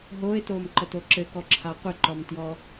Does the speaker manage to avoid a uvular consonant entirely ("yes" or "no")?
no